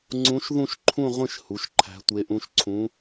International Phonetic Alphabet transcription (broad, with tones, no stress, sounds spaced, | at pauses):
ŋ͡ǀ ũ˧˥ ʃ ð ũ˥˧ ʃ ǃʰ ũ˥˧ ʁʷ ẽ˥˧ ʃ h u˩˥ ʃ ǃʰ æ̤˧˥ tʷ e˧˥ ʔ ũ˧˥ ʃ ǀʰ ũ˧˥